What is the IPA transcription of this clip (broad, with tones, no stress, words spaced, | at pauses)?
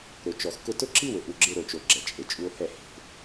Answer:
ɾʊ˨ t͡ʃɔ˨xkʊ˦ tʊ˦ǁi˦wʊ˨ʔu˨ ɡ͡ǁɪ˦ ɾo˨t͡ʃo˨ ɡ͡ǁɛ˨t͡ʃʼe˨t͡ʃʼu˦o̯ hɛ˦˨he̤˦˨